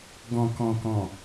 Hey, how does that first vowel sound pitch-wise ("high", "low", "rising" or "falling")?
low